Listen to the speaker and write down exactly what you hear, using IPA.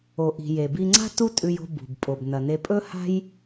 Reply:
o˩ ʔ i̤˩ j e˩ b i˧ ŋ͡ǀ a̤˥ t u˥ tʼ ʉ˧ j o̤˧ b ṳ˩ b pʼ o˩ b n ɐ˩ n e˧ pʼ ɵ˥ h a̤˥ j

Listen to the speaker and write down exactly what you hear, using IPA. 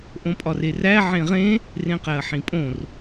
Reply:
ʔ õ pʼ ɒ r e r æ ʕ ẽ ʁ ẽ | r ẽ q æ ɐ̯ ħ ĩ pʼ õ r

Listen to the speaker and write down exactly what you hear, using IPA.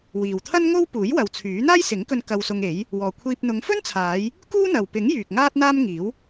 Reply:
w iː˨ w t̪ʰ ɐ˥ n ŋ o˥ w p uː˨˥ j w ɐ˨˧ w t͡sʰ yː˨˥ n̪ aː˥ j s ɪ˨˥ ŋ k ɵ˧ n k ɐ˧ w s ʊ˧ ŋ e˨˥ j | w ɔː˨ kʷʰ iː˧ p̚ n̪ ʊ˨˧ ŋ f ɵ˥ n t͡sʰ aː˨˧ j | k uː˥ n̪ ɐ˨ w p ɪ˨˥ ŋ j yː˨ k̚ ŋ aː˥ t̚ n̪ aː˥ m ŋ iː˨˥ w

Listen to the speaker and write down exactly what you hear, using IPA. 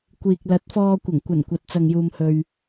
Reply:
kʷ iː˨ k̚ l ɐ˨˥ t̚ f ɔː˧ kʷ ɐ˨˩ ŋ kʷ ɐ˨˩ n kʷ ɐ˨ t̚ t͡s ɐ˨ ŋ j uː˨ m h ɵ˨ ɥ

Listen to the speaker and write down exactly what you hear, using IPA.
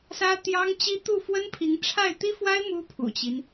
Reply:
s ä˥ t̪ j ɑ˥ ŋ t͡ɕ i˥ t̪ u˥˩ f w ə˥ n pʰ i˧˥ ŋ ʈ͡ʂʰ a˥˩ ɪ̯ t̪ i˥ f w a˥ ɪ̯ m u˥ pʰ ṵ˨˩ t͡ɕ i˦ n

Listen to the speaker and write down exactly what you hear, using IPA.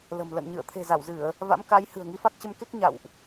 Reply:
l ə̤˨˩ m l ə̰˧˨ n ɲ ɨ̰˧˨ ə̯ t̪ʰ e̤˨˩ z a˧˩ w z ɨ˧˩˨ ə̯ | v a̰˧˥ m k a˨˦ j h ɨ̤˨˩ ə̯ ŋ i˨˦ f a˦˥ k̚ t͡ɕ ə˧ m k e˦˥ k̚ ɲ a̰˧˨ w ʔ

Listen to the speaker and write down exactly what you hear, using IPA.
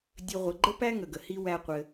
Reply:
dʲ ɘ˦ ʁʷ ə˧ ɡ͡ǃ ə˦ p æ˦ ŋ ə˨ ɡ ə˨ h i˧ w æ˦ qʷ ɘ˧

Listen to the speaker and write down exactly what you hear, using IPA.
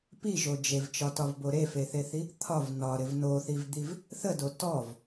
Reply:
p i ʒ o d͡ʒ e v t͡ʃ ɒ t ɒ v b o ɾ e f e θ e θ i | t̪ʰ ɒ v n ɒ ɾ ɪ v n o θ i v d̪ i v | θ ə d o t ɔ v

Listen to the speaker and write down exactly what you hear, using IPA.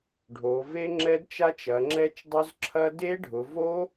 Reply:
ɖʱ o˩˧ v e˦˥ ŋ͡ǁ ɛ˦˥ d t͡ʃ a˦˥ t͡ʃ ɐ˩˧ ŋ͡ǁ ɛ˦˥ t͡ʃ dˤ ʊ˦˥ z ǁʰ ɐ˦˥ d e˦˥ ɖʱ ʊ˩˧ v o˦˥

